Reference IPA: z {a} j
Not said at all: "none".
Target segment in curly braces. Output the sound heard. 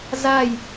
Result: a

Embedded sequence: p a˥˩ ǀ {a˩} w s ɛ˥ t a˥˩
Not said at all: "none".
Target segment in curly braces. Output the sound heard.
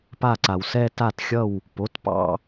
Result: a˩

